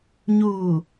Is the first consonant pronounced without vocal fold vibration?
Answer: no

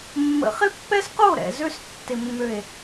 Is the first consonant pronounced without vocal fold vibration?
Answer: no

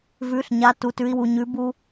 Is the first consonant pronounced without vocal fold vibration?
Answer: no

